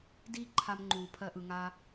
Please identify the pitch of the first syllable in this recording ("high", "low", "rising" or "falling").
high